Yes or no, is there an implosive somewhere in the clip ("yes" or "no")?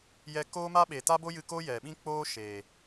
yes